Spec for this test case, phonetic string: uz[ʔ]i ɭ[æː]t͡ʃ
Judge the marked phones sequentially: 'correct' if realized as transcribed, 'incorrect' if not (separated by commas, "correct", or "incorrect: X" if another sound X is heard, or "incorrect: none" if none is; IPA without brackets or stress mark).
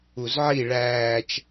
incorrect: ʕ, correct